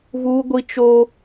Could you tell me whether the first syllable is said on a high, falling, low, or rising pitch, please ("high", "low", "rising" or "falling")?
high